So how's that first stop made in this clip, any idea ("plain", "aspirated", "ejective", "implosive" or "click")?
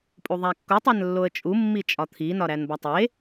ejective